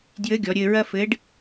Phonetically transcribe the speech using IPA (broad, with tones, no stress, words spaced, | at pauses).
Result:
djɘ˧˥ ɡʲɔ˩˧ɾʲɘː˧ɹɐ˥ fɘ˧˥ɖ